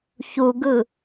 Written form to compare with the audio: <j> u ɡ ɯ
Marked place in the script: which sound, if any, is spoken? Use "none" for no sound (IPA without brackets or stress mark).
ç